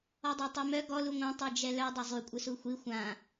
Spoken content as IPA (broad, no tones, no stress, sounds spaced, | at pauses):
ɔ dˤ a tˤ i m œ ɡ ɔ l u ŋʷ ã tˤ œ d͡ʒ ɛ l œ dˤ œ zˤ y kʷʼ ə s u xʷ i xʷ ã